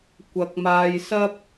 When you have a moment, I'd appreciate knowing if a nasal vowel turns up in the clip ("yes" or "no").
no